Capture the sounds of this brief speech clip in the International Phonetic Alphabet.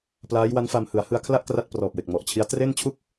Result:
p l aː˦˥ j w a˦˥ n f a˧ m h ɯ˩˦ a̯ h ɯ˧ a̯ kʰ l a˥˩ ʔ k r a˥˩ t̚ p r ɔː˨˩ p̚ w e˨˩ k̚ m ɔ˨˩ ʔ t͡ɕʰ i˦˥ a̯ t r e˥˩ n t͡ɕʰ u˥˩ k̚

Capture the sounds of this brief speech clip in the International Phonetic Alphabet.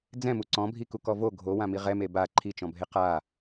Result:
d͡z ɛ̃ m u ǀ ɔ̃ bʱ i k u k ɔ v o ɡʱ o w ã m i ʁ ɛ m e b a ǃʰ i t͡ʃ ɔ̃ bʱ e q a

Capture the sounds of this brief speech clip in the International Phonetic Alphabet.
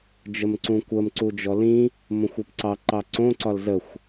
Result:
d͡ʒ ə m ǀ ũ kʷ ə m ǀ u d͡ʒ ɔ l ĩ | m õ xʷ ɒ p ǀ ɑ ǃ ɑ ǀ õ ǀ ɒ l z ə xʷ

